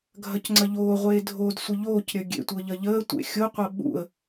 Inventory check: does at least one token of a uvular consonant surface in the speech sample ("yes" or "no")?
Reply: yes